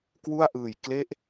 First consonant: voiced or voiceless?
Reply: voiceless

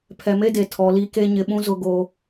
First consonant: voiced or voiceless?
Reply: voiceless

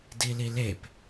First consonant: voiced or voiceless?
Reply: voiced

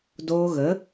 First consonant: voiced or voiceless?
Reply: voiced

